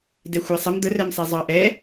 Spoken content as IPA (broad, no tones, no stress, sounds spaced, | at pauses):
d ɛ xʷ æ sˤ ə m d̪ ə r ɛ m sˤ ɛ zˤ ɑ ʔ ɛ